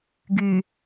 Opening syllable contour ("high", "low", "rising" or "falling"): low